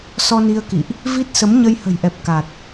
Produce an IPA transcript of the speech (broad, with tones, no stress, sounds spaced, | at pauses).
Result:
s ɔ˧ n i˧ ə̯ k ḭ˧˨ ʔ | v i˦˥ t̚ s ə˨˦ m ɲ ə˧ j h ə̤˨˩ j ʔ ɛ˨˩ p̚ k a˨˩ t̚